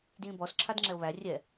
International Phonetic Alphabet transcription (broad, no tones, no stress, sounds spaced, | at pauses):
d j ĩ b ɔ s ǁʰ a d ŋ͡ǁ ɛ o̯ β æ rʲ ɛ